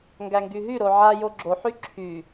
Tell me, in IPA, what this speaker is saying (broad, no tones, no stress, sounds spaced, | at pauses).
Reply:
ŋ ɡ æ ŋ ɡ y ɦ y ɾ o ʕ a j o ɡ͡ǁ o ħ y ǁʰ y